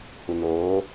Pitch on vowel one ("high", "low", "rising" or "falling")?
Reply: low